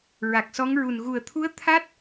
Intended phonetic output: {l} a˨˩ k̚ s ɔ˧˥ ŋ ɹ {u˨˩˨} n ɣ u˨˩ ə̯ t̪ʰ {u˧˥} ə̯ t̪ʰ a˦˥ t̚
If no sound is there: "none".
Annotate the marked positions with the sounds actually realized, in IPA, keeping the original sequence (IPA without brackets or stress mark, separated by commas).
ɹ, u˨˩, u˧˥